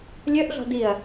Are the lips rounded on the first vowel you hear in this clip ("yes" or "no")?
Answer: yes